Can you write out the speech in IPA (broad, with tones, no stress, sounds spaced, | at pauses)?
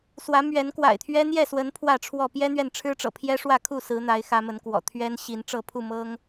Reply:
s w ä˨˦ m ɥ ɛ˨˦ n k w a̰˨˩ ɪ̯ t̪ʰ ɥ ɛ˦ n̪ j ɛ˥˨ s w ə˨˦ n pʰ w ä˥˨ ʈ͡ʂʰ w ɔ˥˨ p j ɛ˦ n̪ ɥ ɛ˨ n ʈ͡ʂʰ ɻ̩˦ ʈ͡ʂ ɤ̰˨˩ pʰ j ɛ˦ ʂ w ä˥˨ kʰ u˥˨ s ɹ̩˨˦ n̪ a˨˦ ɪ̯ x ä˨˦ m ə˨˦ n k w ɔ̰˨˩ t̪ʰ ɥ ɛ˦ n ɕ i˨˦ n ʈ͡ʂ ɤ˥˨ pʰ u˥˨ m ɤ˦ ŋ